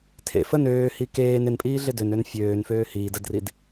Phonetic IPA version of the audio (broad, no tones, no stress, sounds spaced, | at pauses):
tʰ ḛ f ə n øː h i k eː n ɪ n pʼ iː ɮ ɪ d ø n ø n fʲ øː n f øː h iː d ə d r i d